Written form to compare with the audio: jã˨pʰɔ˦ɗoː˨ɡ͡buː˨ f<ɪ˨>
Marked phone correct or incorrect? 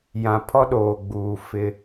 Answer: incorrect: ɪ˦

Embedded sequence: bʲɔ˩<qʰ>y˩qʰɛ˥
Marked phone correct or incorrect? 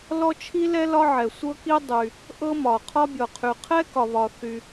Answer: correct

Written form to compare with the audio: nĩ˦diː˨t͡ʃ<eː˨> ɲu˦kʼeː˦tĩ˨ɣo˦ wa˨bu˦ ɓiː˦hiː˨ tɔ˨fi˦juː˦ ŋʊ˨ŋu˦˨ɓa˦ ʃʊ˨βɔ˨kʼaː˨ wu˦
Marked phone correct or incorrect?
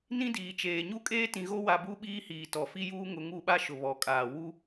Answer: correct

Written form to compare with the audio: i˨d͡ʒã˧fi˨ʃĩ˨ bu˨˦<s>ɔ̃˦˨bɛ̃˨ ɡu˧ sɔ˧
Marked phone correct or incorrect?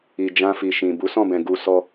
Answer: correct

